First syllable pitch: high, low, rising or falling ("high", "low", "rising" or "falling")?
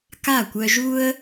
falling